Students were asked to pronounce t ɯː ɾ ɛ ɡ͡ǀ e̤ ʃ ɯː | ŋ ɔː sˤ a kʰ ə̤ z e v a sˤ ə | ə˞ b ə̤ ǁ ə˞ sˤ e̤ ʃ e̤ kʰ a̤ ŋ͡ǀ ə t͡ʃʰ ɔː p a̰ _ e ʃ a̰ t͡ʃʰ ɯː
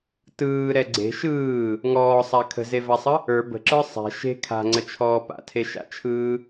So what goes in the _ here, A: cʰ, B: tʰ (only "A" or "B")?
B